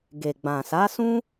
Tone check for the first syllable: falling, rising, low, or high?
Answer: low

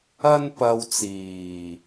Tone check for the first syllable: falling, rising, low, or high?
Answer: high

